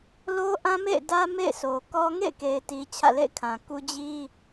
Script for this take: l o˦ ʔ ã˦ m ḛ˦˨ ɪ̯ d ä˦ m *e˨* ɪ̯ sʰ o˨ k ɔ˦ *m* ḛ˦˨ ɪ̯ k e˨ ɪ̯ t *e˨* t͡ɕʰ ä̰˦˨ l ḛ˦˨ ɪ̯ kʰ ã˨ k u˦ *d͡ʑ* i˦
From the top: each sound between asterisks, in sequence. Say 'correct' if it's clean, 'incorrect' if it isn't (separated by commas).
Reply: incorrect, incorrect, incorrect, correct